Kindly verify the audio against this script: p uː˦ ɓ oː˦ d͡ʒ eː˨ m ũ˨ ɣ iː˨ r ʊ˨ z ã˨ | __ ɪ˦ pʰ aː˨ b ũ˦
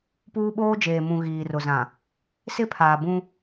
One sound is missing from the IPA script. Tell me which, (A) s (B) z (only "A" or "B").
A